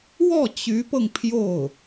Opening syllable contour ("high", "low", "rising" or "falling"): falling